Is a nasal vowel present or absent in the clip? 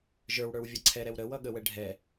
absent